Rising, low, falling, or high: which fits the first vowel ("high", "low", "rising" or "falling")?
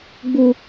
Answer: high